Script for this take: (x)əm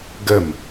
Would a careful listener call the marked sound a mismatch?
yes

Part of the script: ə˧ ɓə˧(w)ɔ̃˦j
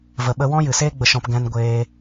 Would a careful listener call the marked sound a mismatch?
no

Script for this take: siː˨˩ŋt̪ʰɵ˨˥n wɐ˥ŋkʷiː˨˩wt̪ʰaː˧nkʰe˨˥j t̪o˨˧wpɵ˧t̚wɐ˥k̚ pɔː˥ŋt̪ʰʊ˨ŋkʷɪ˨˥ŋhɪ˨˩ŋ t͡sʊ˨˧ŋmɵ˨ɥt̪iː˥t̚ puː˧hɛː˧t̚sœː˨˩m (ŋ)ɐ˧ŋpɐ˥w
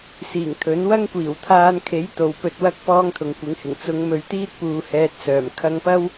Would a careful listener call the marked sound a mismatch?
yes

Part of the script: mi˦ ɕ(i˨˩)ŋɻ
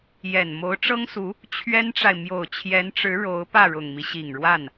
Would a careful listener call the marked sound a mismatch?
no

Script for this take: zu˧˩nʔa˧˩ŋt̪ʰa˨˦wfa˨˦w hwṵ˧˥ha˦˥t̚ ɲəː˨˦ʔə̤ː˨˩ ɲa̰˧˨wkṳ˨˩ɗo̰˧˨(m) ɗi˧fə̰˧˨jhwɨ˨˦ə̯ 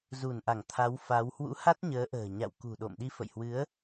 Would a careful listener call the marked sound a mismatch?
no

